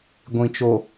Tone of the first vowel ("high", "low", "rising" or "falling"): low